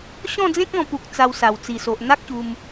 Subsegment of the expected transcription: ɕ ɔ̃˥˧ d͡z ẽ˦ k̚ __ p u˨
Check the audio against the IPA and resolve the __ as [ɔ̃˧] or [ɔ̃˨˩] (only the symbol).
ɔ̃˧